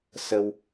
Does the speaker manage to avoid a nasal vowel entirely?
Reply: yes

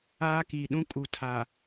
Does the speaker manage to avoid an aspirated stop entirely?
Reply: no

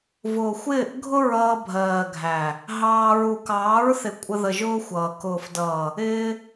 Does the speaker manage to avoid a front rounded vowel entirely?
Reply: yes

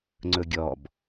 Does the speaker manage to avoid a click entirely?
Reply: no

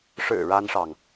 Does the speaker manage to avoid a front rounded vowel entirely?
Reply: yes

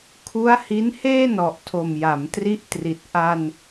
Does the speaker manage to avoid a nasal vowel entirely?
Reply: yes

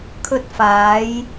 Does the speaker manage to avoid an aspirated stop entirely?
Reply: no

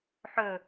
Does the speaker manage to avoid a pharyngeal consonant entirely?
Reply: no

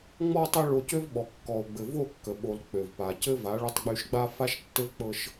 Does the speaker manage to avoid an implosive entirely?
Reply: no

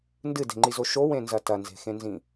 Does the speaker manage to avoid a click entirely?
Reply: no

